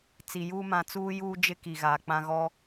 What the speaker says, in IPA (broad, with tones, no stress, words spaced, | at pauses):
t͡si˨juː˦ mã˨ t͡suː˦juː˦d͡ʒɪ˦ ki˨ɣaː˨k͡pã˦ ɣɔ˦